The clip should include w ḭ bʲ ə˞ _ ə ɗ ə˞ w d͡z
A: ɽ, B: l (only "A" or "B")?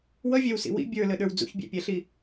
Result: B